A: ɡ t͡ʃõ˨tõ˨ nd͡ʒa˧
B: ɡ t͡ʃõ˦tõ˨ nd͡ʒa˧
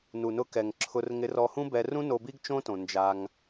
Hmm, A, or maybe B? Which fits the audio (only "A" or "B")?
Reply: B